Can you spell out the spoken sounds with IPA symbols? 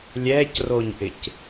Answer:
lʲ ɛ c r o ɲ ʔ ɪ c

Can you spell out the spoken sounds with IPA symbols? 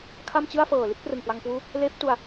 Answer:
kʰ a˥˩ m t͡ɕ ɯ˥˩ a̯ f ɤː˨˩ l i˥˩ t̚ p r ɯ˨˩ ŋ k w a˧ ŋ k w uː˦˥ | l eː˦˥ p̚ t u˧ a̯

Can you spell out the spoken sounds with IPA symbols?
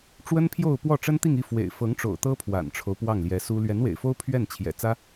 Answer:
ʈ͡ʂ w ə˥ n pʰ j o˥˧ ʊ̯ p w ɔ˥˩ ʈ͡ʂ ə˥ n t̪ i˥˧ ŋ i˥˩ f w ḛ˨˩ ɪ̯ f ɤ˧˥ ŋ ʈ͡ʂ o̰˨˩ ʊ̯ t̪ ɤ˥ pʰ w a̰˨˩ n ʈ͡ʂʰ o˦ ʊ̯ p w ɑ˥˩ ŋ l j ɛ˧˥ s u˥ l ɥ ɛ˧˥ n w ḛ˨˩ ɪ̯ f o˥ ʊ̯ pʰ ɥ ɛ˥˩ n t͡ɕʰ j ɛ̰˨˩ t͡s ä˥

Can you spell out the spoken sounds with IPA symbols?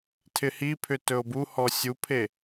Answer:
tʰ ɪ h i pʰ ʏ t ɵ o̯ b u h ɔ sʲ u pʰ e

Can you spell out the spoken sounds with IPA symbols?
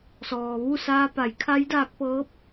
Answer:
s ɔː˩ ʋ u˥˨ s aː˧ p a˩˧ j kʰ a˧˥ j d aː˧ k̚ p ɤː˧˥ p̚

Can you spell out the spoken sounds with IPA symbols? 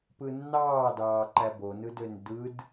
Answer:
p ɯ nː ɑː d ɑː ǃ æ b o n ɯ d ø n d ɯ d

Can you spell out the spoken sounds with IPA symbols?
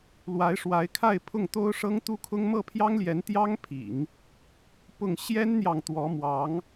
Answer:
l w a˧˥ ɪ̯ ʂ w a˧˥ ɪ̯ kʰ a˥˧ ɪ̯ pʰ ʊ˥˩ ŋ t̪ o˥ ʊ̯ ʂ ɤ˥ ŋ t̪ u˥ kʰ ʊ˥ ŋ m ɤ˥˩ pʰ j ɑ˥ ŋ l j ɛ˧˥ n t̪ j ɑ˥ ŋ pʰ ḭ˨˩˦ ŋ | p ʊ˥˩ ŋ ɕ j ɛ˥ n n̪ j ɑ˨ ŋ t̪ w ɔ˧˥ m w ɑ˧˥ ŋ

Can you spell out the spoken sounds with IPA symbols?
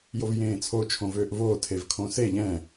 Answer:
j o v j ẽː t͡sʰ o t͡ʃʰ õ v øː ʔ v oː tʰ e v kʰ õ s e ʎ ɛ̃

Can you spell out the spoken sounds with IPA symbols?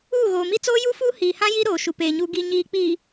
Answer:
uː˦˨ ɣ oː˨ m i˦ t͡s oː˦ j u˦ f uː˦ h iː˨ h ã˦ j i˦ ɾ oː˨ ʃ u˨ p eː˨ ɲ u˨ ɡ i˨ ɲ iː˨ k͡p iː˨

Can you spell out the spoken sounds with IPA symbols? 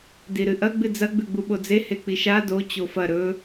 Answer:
d i ɾ ɨ ʔ ɐ ɡ͡b ɨ d͡z ɐ ɡ͡b ʉ ɡ͡b u ɓ o d͡z e h e k͡p i ʃ a d o t͡ɕ o f ɐ ɾ ɵ

